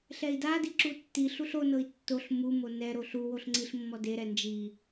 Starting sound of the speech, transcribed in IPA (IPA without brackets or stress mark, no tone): ɬ